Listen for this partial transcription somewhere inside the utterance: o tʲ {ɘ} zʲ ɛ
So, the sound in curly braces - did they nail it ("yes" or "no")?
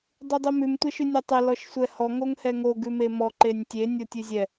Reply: no